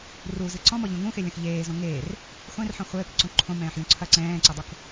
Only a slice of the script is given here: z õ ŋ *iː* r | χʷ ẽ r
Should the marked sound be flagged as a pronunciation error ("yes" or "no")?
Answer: yes